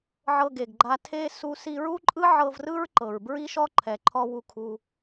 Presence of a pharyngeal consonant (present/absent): present